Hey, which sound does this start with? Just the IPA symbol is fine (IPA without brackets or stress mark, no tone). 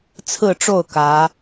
t͡sʰ